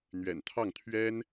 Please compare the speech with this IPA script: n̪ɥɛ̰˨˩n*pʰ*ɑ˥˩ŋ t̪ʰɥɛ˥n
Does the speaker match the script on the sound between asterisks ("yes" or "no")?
no